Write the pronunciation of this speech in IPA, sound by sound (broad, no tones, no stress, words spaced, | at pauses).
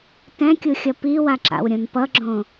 tɛ̃kʲuxʲʌ piwaǁa̰wɾʲõn pʌɡ͡ǁõ